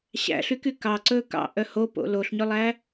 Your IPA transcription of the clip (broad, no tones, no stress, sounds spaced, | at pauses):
ɕ æ̰ ɬ y k y k ɑ ǀ ɵː k ɑ̰ ʔ œ h o p o̰ l o ɬ ɲ ɵ lˠ æ